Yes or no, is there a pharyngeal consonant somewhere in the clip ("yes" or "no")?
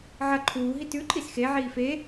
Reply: yes